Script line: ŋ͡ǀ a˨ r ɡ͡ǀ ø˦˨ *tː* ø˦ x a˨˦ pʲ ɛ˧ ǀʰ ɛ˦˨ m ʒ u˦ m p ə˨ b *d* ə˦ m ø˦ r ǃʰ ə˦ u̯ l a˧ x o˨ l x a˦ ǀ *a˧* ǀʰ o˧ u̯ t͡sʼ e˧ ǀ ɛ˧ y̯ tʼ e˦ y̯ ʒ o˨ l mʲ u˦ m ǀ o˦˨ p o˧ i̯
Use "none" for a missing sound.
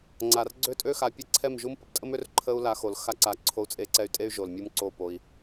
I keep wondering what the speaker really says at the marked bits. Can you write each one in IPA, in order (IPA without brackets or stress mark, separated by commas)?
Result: tʼ, tʼ, a˧